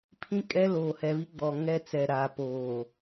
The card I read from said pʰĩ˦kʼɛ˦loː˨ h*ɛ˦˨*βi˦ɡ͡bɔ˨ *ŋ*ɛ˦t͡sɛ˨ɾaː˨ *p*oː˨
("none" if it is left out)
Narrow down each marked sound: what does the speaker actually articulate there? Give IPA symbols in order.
ɛ˨, ŋ, p

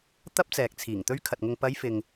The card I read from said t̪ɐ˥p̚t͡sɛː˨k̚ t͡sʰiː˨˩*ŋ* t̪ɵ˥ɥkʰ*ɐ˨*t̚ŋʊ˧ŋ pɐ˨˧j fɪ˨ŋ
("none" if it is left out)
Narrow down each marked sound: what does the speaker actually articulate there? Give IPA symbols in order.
ŋ, ɐ˨

